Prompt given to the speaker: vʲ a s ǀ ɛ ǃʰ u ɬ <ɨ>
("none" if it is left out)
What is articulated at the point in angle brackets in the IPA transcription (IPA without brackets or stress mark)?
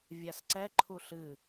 ɨ